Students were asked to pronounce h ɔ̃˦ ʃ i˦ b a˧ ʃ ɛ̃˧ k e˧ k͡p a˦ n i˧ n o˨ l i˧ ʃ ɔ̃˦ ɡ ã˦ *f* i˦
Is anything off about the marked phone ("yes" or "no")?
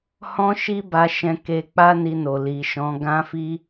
no